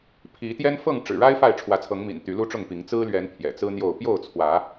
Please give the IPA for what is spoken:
pʰ i˨˦ t̪ j ɛ˦ n f ɤ˥˨ ŋ ʈ͡ʂ ɻ̩˨˩ ɻ a˦ ɪ̯ f a˥˨ ɪ̯ ʈ͡ʂʰ w ä˨˦ t͡sʰ ɤ˨˦ ŋ m ḭ˨˩ n t̪ y˨˦ l u˦ ʈ͡ʂ ʊ˥˨ ŋ p i˨˦ ŋ t͡s ɹ̩˦ l ɥ ɛ˨˦ n pʰ j ɛ̰˨˩ t͡s ɹ̩˦ n̪ j o˥˨ ʊ̯ p j o˥˨ ʊ̯ t͡sʰ w ä˨˦

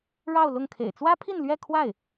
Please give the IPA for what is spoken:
ɻ ɑ˥˧ ʊ̯ l ʊ˥˩ ŋ kʰ ḛ˨˩ ɪ̯ t͡s w ä˥ pʰ i˥˧ n l ɥ ɛ˥˧ kʰ w a˥˩ ɪ̯

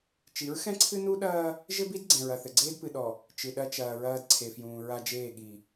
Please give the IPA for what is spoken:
t͡ʃ i˨˦ ɹ x ɛ̃˦ ǀʰ ɨ˦ n u˦ ɗ ɐː˦ | ʒ ɘ˦ b i˦ d ɡ͡ǀ ɛ̃˨ ɹ ɐ˨ θ ɘ˨ ɡ͡ǀ eː˦ d p ɨ˨ ɗ ɔ˨ | t͡ʃ ɨ˨ ɗ ɐ˦ t͡ʃ ɐː˨ ɹ ɐː˦ d ǀʰ e˨ f j ũː˨ ɹ a˦ d͡ʒ eː˦˨ ɠ i˨

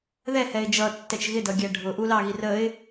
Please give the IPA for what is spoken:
ð ɛ h ɛ ɪ̯ d͡ʒ ʌ tː ɛ t͡ʃ ɣ ɪ d ʌ ɡʲ æ ɖʱ ʊ ʔ u l ɑ ɣ i r ə ɪ̯

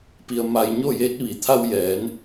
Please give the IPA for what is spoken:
p i˧ ə̯ m a˧ j ɲ o˥˨ j eː˧˥ t̚ ʋ i˩ t̪ʰ a˧ w j ɛː˩˧ n

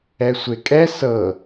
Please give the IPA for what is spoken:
ɛ sʷ e kʼ ɛ s ɤ

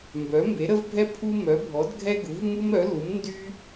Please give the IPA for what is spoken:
m b œ˩˥ m b e˩˥ ɾ ə˦ v bʱ ɛ˦ pʰ u˦ m œ˩˥ bʱ ɔ˩˥ d ɡʱ ɛ˦ ɡ u˩˥ v m u˦ m ɾ œ˩˥ l u˩˥ m n d y˦

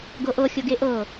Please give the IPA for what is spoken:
ɡ ɤ ʔ ɤ xʲ ɤ ɡ e ʔ ɤ

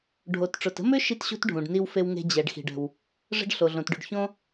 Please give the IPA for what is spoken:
ɖʱ o˩ t ʈ͡ʂ ʊ˩ t ə̤˥ m ʏ˥ ʃ i˥ t ɕ ṳ˥ t ɖʱ ũ˩ ɖ n i˥ w f e˥ w ŋ e̤˥ d͡ʑ ɛ˩ ɖ x i̤˩ ɖ ə̤˩ w | ʐ ə̤˥ ɖ ɬ o˩ ɮ õ˩ t ɖ y˩ ɖ ç õ˥

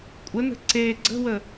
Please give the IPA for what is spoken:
kʷʼ ə n ə̤ ǀ e ɡ͡ǀ ə̤ w ə

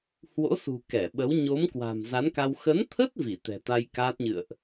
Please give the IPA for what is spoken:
h w o̰˧˥ s ṳ˨˩ k ɛ˧˩ ɓ ə˨˦ w ɲ o˨˦ m k w a̤˨˩ m z a˨˦ n k a˧ w x ə˨˦ n t̪ʰ ə˦˥ t̚ v i˧˩ t̪ ɛ̤˨˩ t̪ a˧ j k aː˦˥ t̚ ɲ ɨ̰˧˨ ə̯ ʔ

